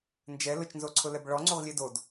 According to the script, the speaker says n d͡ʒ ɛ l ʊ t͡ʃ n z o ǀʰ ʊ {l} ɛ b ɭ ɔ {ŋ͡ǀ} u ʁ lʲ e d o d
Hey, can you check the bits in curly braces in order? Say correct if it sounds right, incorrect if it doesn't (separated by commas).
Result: correct, correct